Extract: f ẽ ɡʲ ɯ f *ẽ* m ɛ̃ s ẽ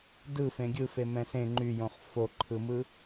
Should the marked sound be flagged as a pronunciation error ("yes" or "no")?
yes